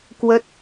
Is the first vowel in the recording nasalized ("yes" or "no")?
no